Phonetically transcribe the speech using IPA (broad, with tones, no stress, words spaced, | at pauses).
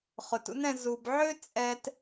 χʊ˨tṵ˦nɛ̃˧ zu˨bʕø˦ t͡sʼɛ˧t